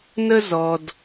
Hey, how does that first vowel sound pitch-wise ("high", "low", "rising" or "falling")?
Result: high